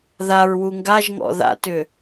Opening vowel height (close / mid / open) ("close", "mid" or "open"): open